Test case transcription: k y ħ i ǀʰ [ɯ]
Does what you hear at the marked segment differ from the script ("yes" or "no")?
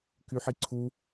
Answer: yes